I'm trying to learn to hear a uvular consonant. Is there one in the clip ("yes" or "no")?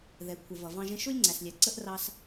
no